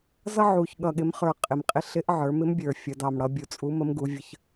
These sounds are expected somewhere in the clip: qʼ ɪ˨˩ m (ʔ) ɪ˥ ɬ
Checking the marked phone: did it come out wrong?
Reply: yes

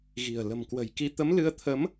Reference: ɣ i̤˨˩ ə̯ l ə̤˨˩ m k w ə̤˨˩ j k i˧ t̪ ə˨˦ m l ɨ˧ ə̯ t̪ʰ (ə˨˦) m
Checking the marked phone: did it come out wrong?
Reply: no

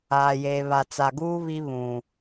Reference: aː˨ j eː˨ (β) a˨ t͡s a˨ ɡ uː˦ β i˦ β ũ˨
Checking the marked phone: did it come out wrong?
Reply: no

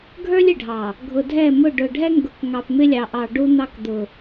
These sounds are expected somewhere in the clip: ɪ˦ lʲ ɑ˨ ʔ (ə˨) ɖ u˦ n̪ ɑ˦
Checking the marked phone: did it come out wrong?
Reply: yes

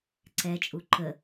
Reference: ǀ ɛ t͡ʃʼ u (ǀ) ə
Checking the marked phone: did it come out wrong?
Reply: yes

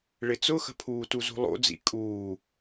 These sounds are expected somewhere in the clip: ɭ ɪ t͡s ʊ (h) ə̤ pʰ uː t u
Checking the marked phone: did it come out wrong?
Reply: yes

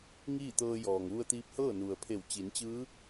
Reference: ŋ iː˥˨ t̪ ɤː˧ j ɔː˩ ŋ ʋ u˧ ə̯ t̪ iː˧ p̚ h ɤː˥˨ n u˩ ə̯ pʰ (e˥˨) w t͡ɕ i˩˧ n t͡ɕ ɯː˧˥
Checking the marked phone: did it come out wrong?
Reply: yes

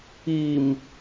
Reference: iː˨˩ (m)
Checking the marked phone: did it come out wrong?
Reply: no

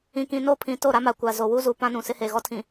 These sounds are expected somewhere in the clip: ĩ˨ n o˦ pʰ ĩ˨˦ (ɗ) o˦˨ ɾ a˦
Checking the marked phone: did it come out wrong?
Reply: yes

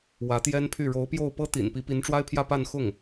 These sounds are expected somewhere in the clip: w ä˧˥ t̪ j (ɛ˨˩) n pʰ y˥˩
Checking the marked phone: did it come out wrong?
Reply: yes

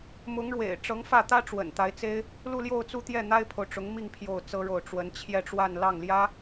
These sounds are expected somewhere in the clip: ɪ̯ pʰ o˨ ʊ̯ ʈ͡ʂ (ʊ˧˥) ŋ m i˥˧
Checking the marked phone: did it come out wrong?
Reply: no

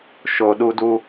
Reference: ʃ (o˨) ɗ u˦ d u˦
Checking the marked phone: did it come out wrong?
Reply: no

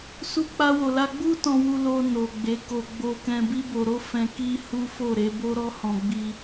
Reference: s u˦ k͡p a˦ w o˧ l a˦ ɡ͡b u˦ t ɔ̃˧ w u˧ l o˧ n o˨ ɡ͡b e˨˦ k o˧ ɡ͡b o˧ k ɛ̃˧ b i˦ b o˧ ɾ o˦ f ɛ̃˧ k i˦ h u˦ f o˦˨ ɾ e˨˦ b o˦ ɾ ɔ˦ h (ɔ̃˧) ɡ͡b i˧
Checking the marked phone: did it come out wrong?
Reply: no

